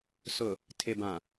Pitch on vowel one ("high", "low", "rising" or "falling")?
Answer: low